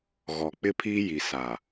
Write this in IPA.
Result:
ɣɔ˨k͡pɪ˦pʰiː˦ji˨ sa˨

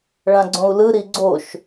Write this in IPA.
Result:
ɭãɡ͡ǀõu̯lɯ ɾiɡ͡ǀoʃ

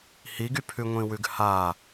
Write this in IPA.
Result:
hiɡypʰʉ ŋʷĩwʉɡha

